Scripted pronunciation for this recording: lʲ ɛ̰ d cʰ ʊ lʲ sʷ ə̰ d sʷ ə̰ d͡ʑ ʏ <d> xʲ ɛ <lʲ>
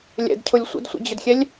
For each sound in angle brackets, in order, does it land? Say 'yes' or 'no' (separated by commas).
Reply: yes, yes